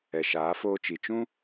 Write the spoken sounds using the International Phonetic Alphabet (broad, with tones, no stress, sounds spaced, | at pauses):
ɛ˨ ʃ aː˨˦ f oː˧ t͡ʃ i˨ t͡ʃ ũ˦